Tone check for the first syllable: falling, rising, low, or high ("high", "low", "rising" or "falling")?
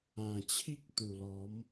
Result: low